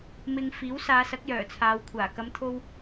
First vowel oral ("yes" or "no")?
yes